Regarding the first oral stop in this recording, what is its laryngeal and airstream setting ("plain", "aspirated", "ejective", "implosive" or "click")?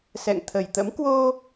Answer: aspirated